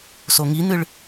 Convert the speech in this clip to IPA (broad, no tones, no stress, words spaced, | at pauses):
soŋin̪ɨɭ